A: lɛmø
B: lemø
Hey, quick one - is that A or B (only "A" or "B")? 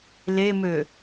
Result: B